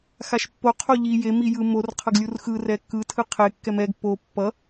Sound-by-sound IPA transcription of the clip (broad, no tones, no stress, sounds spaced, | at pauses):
x a ʃ pː o qʰ o ʎ i j e m i j ɯ m o r qʰ ʌ ɡ lʲ u r x ɯ r ɛ kː ɯ tʰ ɯ qʰ e kː ɛ m ɛ ɡ p o pː ʌ